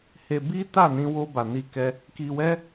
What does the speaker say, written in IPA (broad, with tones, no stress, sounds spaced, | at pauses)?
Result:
h e˧ b i˦ t a˦˨ n ĩ˧ w o˧ b a˨ n i˧ k ɛ˧ | k i˧ w ɛ˦